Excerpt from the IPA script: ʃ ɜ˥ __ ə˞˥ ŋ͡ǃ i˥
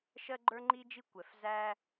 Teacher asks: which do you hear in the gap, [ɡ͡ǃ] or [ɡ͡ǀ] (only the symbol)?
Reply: ɡ͡ǃ